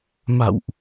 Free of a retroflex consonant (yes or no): yes